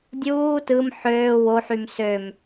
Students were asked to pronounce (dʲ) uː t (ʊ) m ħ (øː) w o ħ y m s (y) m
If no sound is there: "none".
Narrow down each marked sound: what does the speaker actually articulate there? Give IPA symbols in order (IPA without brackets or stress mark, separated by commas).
dʲ, ɯ, øː, ø